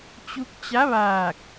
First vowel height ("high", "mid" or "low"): high